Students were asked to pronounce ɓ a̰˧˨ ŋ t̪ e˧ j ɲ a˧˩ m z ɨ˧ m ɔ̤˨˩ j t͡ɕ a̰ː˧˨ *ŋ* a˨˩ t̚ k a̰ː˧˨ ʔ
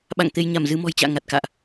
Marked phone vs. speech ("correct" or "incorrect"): correct